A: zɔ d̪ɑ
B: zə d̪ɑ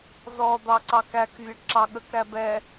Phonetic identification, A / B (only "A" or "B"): A